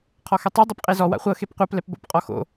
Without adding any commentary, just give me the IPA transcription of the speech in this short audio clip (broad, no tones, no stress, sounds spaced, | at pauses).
qʰ ɔ x ɛ tˤ e dˤ ɯ p qʼ e z ɔ w a̰ χʷ ɤ x e p qʷ a p l ɛ p b o̰ p qʼ ɔ x o̰